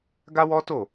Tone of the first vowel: high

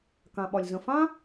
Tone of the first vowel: low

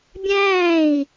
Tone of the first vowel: falling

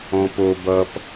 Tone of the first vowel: low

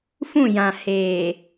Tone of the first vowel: falling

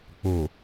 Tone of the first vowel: low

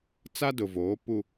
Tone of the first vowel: high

